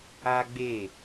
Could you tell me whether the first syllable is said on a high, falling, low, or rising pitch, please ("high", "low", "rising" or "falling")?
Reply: high